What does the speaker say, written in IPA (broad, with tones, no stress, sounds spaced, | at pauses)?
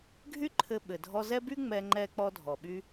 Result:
ɡʱ y˥ ǃʰ ɘ˧ ɓ ɘ˩ dʱ ɔ˧ z ɛ˥ b y˥ ŋ͡m ɛ˧ ŋ͡ǃ ɛ˧ k͡p ɔ˧ dʱ ɔ˩ ɓ y˧